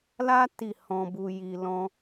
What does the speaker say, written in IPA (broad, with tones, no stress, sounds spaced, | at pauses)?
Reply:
l a˦ t i˦˨ h ɔ̃˧ b u˧ j i˧ l ɔ̃˦